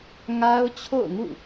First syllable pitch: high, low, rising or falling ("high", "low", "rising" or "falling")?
high